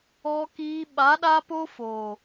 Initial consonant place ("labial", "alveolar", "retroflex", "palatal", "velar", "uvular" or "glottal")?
velar